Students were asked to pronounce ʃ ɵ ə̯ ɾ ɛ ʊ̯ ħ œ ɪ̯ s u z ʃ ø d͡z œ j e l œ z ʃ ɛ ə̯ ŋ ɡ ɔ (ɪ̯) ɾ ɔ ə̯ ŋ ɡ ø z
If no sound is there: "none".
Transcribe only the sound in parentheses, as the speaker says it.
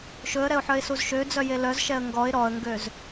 ɪ̯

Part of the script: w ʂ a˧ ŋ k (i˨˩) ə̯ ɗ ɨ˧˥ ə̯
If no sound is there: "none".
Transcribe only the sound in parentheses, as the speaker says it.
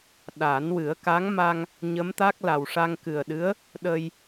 ɨ˨˩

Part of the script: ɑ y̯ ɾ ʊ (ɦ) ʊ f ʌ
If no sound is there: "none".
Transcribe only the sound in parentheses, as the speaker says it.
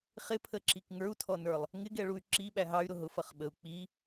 ɦ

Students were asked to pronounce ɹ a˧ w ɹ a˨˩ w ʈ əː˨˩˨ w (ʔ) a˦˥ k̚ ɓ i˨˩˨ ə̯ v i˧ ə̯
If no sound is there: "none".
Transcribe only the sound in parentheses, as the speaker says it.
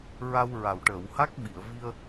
h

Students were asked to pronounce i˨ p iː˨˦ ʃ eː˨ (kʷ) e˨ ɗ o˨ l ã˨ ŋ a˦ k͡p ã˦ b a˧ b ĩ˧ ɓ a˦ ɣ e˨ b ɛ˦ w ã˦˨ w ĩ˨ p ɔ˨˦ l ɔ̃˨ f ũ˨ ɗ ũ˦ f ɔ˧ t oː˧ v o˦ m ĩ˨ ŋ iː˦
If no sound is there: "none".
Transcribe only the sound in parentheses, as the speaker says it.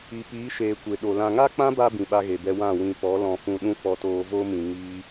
kʷ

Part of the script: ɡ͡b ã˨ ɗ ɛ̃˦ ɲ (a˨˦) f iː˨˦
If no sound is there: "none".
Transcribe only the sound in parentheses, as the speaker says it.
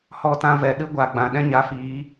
a˨˦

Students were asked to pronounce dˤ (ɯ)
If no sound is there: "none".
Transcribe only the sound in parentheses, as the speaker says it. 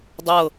ɤ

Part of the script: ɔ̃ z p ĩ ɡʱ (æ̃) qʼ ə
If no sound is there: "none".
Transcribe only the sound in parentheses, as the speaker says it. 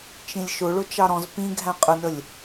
æ̃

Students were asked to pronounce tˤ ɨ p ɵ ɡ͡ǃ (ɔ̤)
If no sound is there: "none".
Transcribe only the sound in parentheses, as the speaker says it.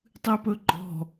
ɔ̤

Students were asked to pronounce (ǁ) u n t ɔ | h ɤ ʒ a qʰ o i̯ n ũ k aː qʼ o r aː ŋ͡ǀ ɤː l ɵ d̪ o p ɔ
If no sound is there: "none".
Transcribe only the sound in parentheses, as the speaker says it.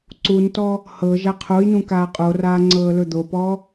ǀ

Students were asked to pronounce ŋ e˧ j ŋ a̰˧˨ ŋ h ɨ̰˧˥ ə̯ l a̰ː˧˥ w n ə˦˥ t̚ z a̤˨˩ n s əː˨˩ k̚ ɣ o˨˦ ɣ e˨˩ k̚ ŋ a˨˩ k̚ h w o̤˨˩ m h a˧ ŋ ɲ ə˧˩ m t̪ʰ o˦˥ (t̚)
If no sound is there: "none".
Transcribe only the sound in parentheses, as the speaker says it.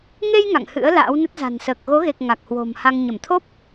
p̚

